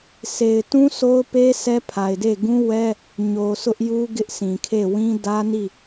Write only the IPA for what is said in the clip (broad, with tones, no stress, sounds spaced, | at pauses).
s e˨ ɪ̯ t ũ˦ sʰ o˦ ʊ̯ p e˦ sʰ ɛ˦ pʰ a˨ ɪ̯ d e˦˨ ɡ ũ˦ w ɛ˦ | ɲ o˨ s ʊ˦ ʔ j u˦ ɡ ɪ˦ ʔ sʰ ĩ˨ kʰ e˦˨ w ĩ˦ d ä˦ n i˦˨